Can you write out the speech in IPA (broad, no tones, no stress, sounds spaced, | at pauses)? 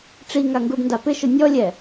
ʈ͡ʂ i ŋ a ŋ ɡ u ɖ n d a p ɪ ʃ ʊ nʲ ɔ lʲ ɛ